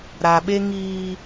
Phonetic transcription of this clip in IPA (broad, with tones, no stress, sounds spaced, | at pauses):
ɾ a˨ ɓ e˦ ŋ iː˦